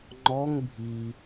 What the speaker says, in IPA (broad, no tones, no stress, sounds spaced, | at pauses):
ŋ͡ǃ ɔ ŋ bʱ i